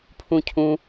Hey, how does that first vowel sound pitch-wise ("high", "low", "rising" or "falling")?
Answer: high